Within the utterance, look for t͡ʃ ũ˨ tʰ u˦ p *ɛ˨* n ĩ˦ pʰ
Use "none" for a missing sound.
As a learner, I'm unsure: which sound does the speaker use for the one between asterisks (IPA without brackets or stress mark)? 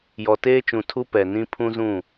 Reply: ɛ˨